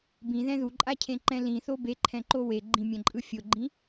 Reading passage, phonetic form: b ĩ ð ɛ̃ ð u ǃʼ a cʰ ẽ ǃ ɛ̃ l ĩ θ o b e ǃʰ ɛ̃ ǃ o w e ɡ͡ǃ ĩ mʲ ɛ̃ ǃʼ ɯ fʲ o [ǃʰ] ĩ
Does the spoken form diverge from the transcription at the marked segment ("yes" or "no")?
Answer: yes